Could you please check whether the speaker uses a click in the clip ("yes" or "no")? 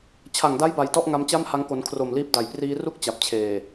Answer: no